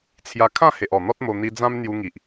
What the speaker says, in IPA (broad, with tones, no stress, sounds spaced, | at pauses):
t͡sʰ j a˧ kʰ ã˥˧ h e˨ ʔ ɔ˨˩ n̪ ɔ˦ t̚ m o˧ n̪ i˧ d͡z ã˦ m n̪ j u˧ ŋ i˨ ʔ